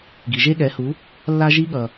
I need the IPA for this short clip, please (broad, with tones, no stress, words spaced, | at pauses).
ɡi˨ʒe˦ɠɛ˨˦hu˨˦ | lːa˧ʒi˧ɠʌ˨